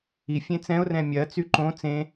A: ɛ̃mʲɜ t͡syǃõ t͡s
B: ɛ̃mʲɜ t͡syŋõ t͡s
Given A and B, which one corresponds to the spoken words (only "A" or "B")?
A